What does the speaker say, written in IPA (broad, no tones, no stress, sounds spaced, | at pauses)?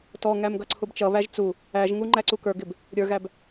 t ɔ ŋ æ m ɡ ʌ ǀʰ ʊ b t͡ʃ ʌ β æ ʒ t͡s u | æ ʒ ŋ u ŋ͡ǃ æ ǀ u k ə˞ ɡ ɪ b | ɾʲ ə˞ ɣ æ b